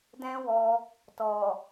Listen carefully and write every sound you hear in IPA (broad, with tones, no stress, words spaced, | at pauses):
dɛ̃˦wɔ˧ | tɔ˨